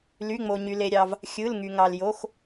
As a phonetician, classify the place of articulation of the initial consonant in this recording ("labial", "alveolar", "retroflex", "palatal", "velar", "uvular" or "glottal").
alveolar